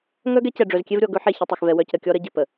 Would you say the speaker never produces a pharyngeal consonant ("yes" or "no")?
no